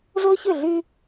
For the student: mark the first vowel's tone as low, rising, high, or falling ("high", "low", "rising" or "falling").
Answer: high